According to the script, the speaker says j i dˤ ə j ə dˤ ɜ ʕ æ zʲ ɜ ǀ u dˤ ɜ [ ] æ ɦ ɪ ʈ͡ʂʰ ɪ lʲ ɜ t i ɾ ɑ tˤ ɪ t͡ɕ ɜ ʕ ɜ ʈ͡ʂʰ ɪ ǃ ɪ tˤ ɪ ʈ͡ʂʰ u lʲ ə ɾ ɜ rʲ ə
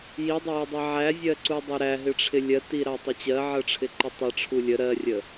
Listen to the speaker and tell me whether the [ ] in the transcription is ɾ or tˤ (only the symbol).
ɾ